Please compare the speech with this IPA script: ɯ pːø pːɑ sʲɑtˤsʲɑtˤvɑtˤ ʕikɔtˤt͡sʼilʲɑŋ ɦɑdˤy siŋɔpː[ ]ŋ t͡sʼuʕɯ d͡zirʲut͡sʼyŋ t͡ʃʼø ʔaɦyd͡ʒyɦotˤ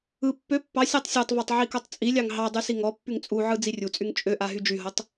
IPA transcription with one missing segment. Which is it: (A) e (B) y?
B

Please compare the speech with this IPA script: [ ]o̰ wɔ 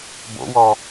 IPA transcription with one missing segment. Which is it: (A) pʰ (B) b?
B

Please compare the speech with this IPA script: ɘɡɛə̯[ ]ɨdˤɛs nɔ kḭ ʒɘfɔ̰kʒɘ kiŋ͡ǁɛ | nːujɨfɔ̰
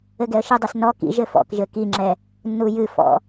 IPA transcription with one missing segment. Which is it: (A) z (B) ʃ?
B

